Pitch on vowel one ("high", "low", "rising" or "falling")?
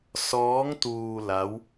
rising